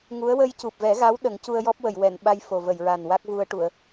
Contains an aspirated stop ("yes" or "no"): no